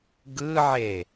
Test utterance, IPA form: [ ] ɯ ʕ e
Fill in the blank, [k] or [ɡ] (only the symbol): ɡ